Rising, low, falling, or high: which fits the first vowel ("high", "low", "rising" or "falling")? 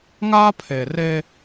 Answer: high